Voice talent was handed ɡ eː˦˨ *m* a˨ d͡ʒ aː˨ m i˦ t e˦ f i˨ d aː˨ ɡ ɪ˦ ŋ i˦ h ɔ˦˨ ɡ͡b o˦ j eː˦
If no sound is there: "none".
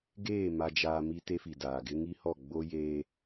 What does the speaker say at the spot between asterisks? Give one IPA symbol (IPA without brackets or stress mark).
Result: m